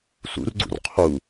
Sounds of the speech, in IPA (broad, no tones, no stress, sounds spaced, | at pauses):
s ṵ r ɡ͡ǀ ṵ r qʰ u